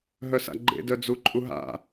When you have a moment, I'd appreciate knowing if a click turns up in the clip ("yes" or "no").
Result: yes